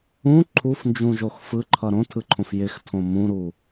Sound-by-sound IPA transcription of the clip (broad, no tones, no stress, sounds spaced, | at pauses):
ũ ǃʰ u f n d͡ʒ ũ ʒ o x f ɯ ǃʰ ʌ ɾ õ tʰ ɯ ǃʰ õ f j ɪ x tʰ õ m ũ ɾ u